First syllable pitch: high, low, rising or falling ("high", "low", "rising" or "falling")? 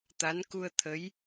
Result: rising